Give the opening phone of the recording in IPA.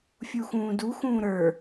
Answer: fʲ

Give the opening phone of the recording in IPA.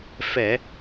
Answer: f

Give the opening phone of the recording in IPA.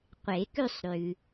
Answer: qʷ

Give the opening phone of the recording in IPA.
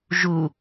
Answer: ʒ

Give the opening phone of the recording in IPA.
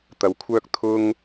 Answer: t̪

